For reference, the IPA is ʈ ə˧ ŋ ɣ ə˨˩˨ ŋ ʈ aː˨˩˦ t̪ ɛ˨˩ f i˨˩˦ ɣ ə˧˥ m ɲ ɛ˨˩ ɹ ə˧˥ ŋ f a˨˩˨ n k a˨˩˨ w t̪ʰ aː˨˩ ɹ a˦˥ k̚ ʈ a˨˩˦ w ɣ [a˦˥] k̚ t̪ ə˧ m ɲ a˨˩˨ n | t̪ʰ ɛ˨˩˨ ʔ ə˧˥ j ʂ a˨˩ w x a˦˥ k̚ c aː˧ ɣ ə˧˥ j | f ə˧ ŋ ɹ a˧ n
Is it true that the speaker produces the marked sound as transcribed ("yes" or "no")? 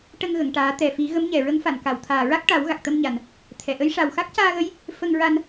no